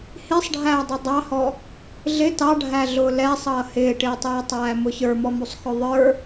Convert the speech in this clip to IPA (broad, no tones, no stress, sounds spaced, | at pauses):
h i sˤ ɖʱ æː dˤ u dˤ ɑ h ɔ | ɮ ɪ t ɑ ɖʱ æ ɮ ʊː l ɛ sˤ ʌː h ɪː ʈ ɪː tˤ iː tˤ æː m ʊ ç ə˞ m ɔ m u sˤ x ʊ ðˤ ə˞